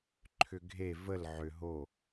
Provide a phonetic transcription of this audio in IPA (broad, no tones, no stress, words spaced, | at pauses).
ǃʰʏɡʱe vəl ʕʏ ɦo